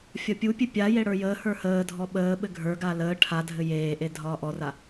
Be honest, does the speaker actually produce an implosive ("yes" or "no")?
yes